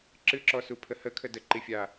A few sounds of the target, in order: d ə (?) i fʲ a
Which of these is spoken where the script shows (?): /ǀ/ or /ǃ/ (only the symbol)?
ǃ